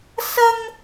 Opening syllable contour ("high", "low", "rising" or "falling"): high